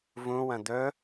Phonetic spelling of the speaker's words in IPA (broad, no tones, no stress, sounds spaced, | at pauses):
v ũ w ɐ̃ d̪ ɵ